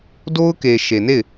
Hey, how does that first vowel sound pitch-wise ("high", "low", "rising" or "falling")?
high